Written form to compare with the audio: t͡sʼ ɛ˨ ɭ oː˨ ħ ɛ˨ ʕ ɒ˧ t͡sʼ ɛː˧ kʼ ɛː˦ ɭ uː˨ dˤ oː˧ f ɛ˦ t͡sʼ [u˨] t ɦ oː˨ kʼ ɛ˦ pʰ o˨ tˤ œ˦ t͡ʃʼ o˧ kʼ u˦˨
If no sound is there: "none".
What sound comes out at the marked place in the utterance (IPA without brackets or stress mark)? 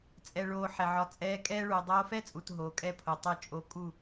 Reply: u˨